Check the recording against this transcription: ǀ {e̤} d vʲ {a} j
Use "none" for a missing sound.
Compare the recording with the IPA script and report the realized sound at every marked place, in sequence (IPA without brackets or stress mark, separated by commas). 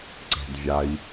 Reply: e̤, a